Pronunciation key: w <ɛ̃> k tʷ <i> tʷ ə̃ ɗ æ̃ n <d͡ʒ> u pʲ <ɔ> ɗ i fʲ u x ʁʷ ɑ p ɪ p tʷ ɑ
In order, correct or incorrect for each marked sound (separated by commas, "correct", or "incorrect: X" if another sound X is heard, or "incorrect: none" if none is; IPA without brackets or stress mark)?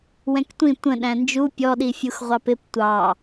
correct, incorrect: ĩ, correct, correct